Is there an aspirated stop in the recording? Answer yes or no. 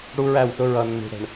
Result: no